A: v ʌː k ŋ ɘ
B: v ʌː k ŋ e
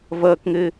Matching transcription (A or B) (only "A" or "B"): A